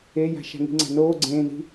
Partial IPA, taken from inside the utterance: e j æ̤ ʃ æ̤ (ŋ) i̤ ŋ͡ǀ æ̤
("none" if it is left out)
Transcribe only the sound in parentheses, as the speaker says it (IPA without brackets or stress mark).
ŋ